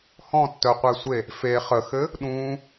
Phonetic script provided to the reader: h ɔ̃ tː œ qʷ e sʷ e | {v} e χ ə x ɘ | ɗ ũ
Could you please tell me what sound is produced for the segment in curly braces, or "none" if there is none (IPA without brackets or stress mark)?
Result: f